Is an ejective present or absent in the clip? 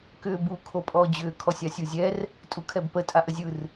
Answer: present